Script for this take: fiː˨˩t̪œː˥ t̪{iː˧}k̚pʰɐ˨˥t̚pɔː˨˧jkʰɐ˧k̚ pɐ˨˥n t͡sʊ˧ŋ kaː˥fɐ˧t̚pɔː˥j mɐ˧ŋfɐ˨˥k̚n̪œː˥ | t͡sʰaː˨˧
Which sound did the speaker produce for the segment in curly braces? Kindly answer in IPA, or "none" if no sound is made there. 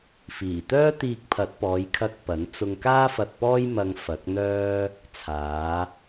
iː˧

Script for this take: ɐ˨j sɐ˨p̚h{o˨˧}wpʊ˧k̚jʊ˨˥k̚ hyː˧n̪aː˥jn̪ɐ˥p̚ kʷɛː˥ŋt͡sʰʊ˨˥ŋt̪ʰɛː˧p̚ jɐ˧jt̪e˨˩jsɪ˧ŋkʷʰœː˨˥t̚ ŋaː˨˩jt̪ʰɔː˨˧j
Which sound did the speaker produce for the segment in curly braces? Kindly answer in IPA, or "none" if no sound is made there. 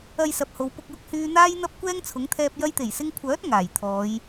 o˨˧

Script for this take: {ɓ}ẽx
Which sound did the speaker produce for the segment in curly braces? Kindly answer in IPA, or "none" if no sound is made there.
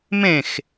m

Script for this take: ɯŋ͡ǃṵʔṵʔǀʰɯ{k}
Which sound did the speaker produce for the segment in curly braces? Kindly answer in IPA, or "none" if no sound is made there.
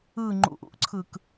k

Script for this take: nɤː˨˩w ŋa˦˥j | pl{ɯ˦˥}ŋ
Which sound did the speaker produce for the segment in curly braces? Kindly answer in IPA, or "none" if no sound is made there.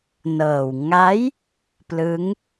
ɯ˦˥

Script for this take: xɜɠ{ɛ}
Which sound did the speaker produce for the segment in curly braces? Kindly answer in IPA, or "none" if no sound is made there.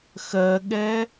ɛ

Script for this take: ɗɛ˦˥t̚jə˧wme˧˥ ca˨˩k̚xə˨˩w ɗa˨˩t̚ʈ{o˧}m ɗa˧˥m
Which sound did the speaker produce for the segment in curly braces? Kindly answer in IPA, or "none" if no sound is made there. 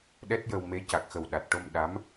o˧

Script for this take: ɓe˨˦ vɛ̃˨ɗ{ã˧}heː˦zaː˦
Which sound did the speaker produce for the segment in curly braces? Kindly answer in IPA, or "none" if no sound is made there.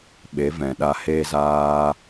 a˧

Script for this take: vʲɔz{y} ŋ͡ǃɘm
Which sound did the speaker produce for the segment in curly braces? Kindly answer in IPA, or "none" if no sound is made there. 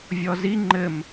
i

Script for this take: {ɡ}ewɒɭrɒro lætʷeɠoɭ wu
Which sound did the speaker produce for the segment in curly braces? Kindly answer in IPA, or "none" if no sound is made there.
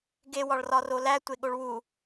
ɡ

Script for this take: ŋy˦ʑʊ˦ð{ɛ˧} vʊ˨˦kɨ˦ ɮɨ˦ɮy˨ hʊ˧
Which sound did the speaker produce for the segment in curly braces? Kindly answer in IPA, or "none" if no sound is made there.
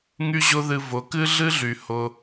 ɨ˧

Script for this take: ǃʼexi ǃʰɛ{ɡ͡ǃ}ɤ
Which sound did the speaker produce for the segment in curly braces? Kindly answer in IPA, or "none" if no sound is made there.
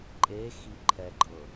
ɡ͡ǃ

